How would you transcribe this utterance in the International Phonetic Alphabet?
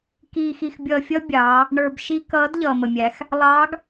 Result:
k iː˧ x i˧ x bʲ ʌː˧ fʲ ʌ˥ bʲ ɑː˩˧ | ɳ ə˞˧ b ʃ i˥ k ʌː˧˥ d ʎ ʌː˩ m ə˩ mʲ æ˩˧ x | lˠ ɑː˧˥ ɡ

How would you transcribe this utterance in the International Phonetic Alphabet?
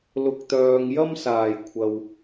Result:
l ʊ˨ k̚ t̪ œː˨ ŋ j ɐ˥ m s aː˨˩ j kʷʰ ɐ˨ w

